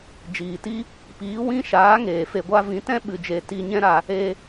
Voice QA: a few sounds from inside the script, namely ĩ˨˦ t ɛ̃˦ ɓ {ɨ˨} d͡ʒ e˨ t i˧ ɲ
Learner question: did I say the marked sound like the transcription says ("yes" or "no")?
yes